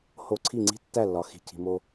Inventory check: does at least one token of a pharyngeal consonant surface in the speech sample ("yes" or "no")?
no